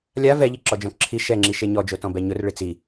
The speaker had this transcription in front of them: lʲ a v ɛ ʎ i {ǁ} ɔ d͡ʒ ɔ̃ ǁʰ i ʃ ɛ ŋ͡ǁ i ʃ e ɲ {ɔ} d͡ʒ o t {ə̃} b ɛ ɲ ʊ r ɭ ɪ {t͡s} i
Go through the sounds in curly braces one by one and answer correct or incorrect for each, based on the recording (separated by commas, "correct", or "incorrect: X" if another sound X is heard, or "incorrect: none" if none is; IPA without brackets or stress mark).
correct, correct, incorrect: ɔ̃, correct